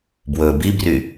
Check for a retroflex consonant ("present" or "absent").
absent